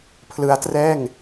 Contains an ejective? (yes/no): no